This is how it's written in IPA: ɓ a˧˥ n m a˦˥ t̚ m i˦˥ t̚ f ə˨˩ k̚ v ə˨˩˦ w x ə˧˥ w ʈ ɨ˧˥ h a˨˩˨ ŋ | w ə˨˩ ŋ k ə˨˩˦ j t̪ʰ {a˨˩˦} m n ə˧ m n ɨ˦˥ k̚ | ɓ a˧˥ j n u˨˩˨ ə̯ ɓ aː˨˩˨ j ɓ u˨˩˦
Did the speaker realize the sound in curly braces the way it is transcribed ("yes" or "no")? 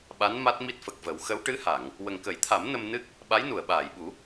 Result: yes